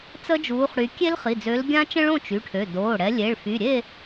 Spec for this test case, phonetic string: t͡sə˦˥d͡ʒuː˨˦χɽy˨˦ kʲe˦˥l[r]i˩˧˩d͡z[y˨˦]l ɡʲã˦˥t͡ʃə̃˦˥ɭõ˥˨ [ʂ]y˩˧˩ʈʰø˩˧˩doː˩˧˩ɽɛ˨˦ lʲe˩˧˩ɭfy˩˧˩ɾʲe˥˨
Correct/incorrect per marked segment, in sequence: incorrect: χ, incorrect: ø˨˦, incorrect: t͡ʃ

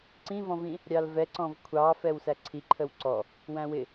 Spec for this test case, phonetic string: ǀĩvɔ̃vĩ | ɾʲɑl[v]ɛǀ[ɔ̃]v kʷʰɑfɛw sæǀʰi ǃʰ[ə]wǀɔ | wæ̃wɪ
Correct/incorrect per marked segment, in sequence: correct, correct, correct

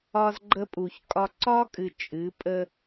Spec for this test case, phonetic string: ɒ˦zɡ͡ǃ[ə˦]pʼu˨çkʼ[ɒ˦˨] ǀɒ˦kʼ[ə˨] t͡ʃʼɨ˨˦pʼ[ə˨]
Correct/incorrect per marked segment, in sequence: correct, incorrect: ɒ˦, incorrect: ɨ˨, incorrect: ə˦

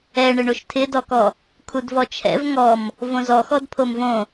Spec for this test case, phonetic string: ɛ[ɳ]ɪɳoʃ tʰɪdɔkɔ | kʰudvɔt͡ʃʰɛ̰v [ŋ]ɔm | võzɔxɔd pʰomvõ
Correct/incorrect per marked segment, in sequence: correct, correct

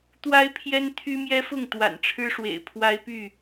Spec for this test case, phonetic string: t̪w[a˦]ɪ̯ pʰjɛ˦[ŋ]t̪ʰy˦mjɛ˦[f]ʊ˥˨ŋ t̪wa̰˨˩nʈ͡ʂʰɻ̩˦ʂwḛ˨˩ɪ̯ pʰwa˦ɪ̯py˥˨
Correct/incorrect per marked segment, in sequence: correct, incorrect: n, correct

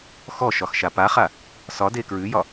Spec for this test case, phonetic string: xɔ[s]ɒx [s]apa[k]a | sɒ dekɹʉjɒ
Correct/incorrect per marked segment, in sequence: incorrect: ʃ, incorrect: ʃ, incorrect: χ

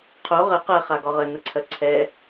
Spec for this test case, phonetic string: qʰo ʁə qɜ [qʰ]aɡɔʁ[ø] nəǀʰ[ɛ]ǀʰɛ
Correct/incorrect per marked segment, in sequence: incorrect: χ, incorrect: ə, incorrect: ɜ

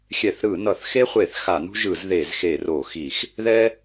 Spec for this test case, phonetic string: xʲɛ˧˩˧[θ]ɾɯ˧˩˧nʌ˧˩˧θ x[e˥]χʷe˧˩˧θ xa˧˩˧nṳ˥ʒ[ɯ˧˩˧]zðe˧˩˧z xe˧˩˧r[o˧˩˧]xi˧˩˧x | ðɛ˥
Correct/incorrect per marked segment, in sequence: correct, correct, correct, correct

